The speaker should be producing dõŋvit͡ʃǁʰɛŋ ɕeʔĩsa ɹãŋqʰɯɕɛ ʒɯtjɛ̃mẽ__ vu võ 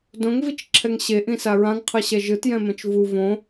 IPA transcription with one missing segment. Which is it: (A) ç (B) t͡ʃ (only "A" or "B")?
B